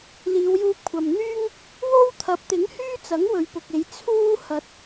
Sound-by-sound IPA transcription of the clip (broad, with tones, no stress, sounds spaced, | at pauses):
l iː˨˧ w j uː˧ p̚ kʷʰ ɐ˨ m n̪ yː˥ ŋ | w o˥ w t̪ʰ ɐ˨˥ p̚ t̪ ɪ˨˥ ŋ h yː˥ t͡s ɐ˨˥ ŋ w ɵ˨˧ ɥ p ʊ˨ k̚ e˨˧ j t͡sʰ uː˥ h ɐ˨ t̚